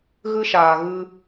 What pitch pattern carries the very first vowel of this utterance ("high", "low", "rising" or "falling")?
high